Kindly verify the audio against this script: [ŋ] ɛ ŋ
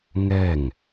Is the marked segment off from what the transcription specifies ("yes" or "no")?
no